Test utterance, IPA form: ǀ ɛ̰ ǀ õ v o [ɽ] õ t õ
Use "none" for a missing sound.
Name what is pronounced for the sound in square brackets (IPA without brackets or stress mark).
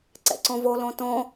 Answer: l